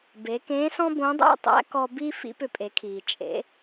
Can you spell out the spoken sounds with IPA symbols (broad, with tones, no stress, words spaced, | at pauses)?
be˩˧kẽː˧˥sɔ̃˥bõ˧˥ dˤæ̰˥tˤæ̰˧˥kɔ˧ bi˥ fḭ˧˥pʏ˧pʼe˩˧kʰiː˩ t͡ʃʼḛ˩˧